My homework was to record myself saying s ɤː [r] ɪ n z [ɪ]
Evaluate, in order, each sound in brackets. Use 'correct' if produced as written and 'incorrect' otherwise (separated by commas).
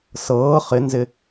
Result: incorrect, correct